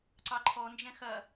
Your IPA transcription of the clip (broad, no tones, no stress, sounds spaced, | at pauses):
ǀ ɑ ǃʰ ɔ n d͡ʒ ɛ̃ x ɐ